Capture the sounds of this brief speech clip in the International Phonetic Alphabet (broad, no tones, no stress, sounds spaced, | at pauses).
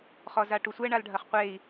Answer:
χ ɔ z a ʈ u sʷ ɛ ɳ a l ɖʱ ɐ χ qʷ e i̯